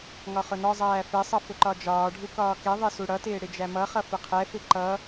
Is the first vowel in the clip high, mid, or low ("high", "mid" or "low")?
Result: low